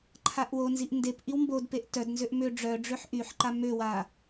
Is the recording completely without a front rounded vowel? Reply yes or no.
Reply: no